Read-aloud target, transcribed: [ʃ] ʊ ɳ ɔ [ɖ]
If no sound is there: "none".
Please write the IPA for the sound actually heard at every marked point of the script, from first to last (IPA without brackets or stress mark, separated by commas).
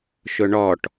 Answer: ʃ, ʈ